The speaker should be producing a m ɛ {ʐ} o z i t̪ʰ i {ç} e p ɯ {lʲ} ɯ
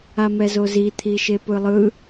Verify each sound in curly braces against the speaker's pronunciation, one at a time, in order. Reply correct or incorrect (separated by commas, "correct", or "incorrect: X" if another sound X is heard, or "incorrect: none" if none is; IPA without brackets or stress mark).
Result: incorrect: z, incorrect: ʃ, incorrect: lˠ